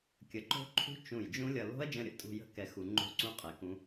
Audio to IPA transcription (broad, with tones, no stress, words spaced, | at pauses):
kʲə˧˩ǃo̤˦˥ǃʰṳ˦˥ t͡ʃũ˧˩j d͡ʒũ˦˥lʲʌ˧ lo̤˦˥ɐ̯d͡ʒə̃˧ɾʲə̰˧˩tʼṳ˧ jə̤˦˥kɛ˧ xu˧ ŋ͡ǃo̤˦˥ǀũ˦˥qʼɛ˧˩kũ˦˥